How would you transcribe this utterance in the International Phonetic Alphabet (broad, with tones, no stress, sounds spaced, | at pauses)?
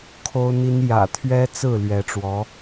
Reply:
kʰ o˥ ʊ̯ n̪ i˥ n j ä̰˨˩ t̪ʰ ɥ ɛ˥ t͡s ɹ̩˥˩ l ɥ ɛ˧˥ ʈ͡ʂ w ɔ˧˥